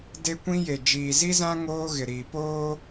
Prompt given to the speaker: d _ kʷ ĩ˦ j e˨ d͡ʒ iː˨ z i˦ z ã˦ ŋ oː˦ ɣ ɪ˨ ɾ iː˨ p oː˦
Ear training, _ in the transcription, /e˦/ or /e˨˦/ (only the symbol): e˦